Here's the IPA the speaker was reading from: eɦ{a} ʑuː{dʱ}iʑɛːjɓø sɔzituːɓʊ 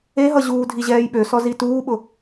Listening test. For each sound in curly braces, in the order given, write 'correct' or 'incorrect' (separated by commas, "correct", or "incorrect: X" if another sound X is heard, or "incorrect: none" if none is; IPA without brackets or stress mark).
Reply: incorrect: ʌ, correct